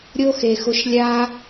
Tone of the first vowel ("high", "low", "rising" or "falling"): high